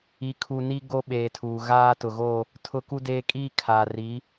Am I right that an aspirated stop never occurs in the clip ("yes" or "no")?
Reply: no